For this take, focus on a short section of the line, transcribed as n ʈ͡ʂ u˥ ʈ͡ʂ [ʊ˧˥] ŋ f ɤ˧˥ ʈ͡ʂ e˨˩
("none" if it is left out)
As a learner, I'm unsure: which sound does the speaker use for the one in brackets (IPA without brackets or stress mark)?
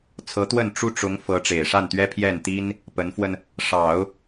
ʊ˧˥